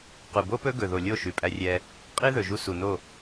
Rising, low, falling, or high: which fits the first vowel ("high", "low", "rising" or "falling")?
low